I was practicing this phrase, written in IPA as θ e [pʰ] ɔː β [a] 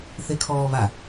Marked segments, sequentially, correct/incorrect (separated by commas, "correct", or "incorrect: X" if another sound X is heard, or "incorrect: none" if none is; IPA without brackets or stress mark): incorrect: kʰ, correct